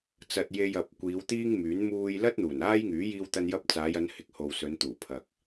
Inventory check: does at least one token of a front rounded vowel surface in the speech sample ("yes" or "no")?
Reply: yes